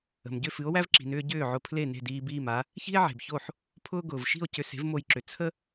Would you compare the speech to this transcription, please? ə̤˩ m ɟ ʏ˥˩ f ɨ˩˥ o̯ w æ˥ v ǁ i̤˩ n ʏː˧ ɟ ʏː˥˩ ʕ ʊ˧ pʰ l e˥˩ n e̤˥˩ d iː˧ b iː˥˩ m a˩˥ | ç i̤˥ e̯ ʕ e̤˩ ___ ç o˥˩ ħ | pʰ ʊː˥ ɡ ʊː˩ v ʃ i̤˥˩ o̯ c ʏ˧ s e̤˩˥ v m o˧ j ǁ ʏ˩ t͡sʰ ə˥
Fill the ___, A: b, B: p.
A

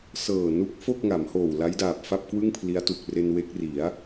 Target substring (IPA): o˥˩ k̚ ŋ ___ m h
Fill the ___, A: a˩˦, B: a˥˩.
A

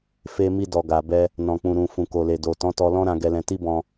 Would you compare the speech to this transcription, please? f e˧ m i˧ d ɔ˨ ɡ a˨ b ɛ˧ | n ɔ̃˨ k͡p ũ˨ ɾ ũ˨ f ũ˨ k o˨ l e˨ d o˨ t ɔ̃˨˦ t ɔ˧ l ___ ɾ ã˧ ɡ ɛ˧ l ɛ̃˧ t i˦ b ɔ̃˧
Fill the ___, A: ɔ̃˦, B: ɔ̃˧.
A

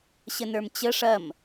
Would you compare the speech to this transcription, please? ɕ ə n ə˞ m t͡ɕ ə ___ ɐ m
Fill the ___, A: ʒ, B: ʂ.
B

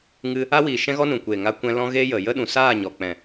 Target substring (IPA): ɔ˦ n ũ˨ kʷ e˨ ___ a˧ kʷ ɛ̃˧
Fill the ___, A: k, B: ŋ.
B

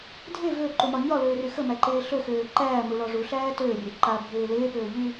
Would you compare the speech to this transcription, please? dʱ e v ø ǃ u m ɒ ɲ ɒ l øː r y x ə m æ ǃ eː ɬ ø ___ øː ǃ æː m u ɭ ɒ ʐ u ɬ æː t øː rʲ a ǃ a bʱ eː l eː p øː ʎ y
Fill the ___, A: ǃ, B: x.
B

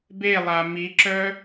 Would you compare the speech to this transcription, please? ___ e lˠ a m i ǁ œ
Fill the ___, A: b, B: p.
A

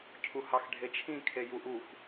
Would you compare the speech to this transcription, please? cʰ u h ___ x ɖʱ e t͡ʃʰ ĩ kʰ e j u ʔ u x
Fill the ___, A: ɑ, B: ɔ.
A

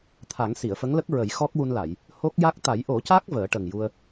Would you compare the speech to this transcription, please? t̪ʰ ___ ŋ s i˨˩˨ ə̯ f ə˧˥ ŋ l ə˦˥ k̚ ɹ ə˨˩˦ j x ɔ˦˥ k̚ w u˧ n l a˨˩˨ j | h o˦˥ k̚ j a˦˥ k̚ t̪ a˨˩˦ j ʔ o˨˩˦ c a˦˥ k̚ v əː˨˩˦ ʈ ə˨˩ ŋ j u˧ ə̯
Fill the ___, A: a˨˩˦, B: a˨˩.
A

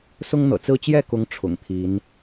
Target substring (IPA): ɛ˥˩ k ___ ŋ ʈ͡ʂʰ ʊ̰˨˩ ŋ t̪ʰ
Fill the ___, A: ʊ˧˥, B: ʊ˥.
A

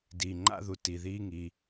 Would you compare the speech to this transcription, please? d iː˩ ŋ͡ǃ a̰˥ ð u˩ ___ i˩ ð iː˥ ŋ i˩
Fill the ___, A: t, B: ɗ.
A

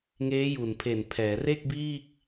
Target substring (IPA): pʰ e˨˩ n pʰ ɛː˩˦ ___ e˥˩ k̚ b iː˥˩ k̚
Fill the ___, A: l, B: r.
B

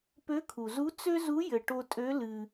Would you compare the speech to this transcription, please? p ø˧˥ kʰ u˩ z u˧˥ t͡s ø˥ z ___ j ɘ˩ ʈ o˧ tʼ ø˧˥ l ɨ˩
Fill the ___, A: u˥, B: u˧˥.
B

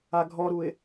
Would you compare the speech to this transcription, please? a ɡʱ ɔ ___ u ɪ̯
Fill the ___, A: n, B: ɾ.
B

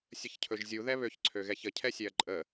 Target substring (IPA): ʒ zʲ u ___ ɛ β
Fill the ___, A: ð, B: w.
A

